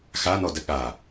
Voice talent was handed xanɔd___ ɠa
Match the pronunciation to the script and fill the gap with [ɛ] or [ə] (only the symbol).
ə